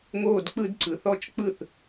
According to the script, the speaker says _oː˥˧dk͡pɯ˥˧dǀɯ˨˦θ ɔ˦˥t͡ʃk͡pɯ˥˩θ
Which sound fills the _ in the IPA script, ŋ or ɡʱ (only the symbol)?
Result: ŋ